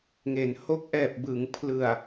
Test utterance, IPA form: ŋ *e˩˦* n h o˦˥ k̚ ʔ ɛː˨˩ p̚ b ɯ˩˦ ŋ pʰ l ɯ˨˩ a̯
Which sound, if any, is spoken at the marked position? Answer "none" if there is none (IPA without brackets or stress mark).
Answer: e˩˦